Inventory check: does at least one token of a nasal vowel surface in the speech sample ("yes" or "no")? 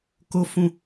yes